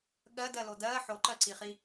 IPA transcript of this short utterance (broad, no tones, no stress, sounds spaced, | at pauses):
ɠ ɜ d ɜ l o d ɜ ħ o ǃ ɜ ǀ i χ i